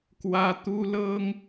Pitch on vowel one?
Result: high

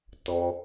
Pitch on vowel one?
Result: low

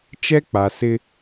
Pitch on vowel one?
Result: high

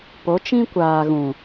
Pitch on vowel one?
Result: rising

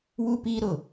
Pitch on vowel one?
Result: high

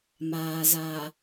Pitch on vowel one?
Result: low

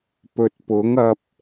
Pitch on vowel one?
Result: low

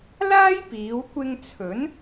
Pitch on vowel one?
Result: high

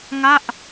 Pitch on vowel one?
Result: falling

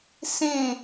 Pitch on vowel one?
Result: falling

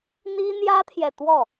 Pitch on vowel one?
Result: high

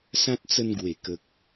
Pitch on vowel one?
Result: high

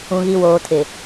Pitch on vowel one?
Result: low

